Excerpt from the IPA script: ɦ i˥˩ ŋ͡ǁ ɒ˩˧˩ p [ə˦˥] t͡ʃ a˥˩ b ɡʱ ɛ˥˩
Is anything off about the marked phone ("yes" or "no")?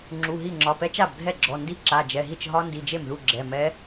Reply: yes